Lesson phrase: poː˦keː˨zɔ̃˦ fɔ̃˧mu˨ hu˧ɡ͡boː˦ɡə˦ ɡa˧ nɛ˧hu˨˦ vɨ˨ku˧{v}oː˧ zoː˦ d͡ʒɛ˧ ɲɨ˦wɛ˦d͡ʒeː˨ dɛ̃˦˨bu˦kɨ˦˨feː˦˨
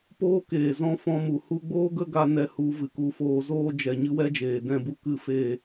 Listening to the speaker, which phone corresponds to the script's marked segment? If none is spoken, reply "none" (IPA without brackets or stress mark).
f